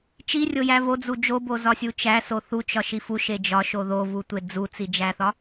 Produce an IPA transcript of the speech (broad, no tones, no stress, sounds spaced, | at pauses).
t͡ʃ i rʲ o j æ v o d͡z u d͡ʒ o b o z ɒ sʲ u t͡ʃ æ s o θ u t͡ʃ ɒ ʃ i f u ʃ e d͡ʒ ɒ ʃ o ð o v u tʷ e d͡z u t͡s i d͡ʒ æ θ ɒ